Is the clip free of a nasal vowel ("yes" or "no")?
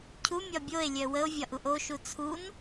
yes